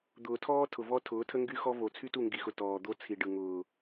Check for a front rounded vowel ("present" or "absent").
present